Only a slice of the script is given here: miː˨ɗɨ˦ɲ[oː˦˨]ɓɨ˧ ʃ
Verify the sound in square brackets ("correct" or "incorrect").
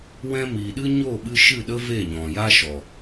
correct